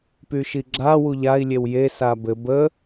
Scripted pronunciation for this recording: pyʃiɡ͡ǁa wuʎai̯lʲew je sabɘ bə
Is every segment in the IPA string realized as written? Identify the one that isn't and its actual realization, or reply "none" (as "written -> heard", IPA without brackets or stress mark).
none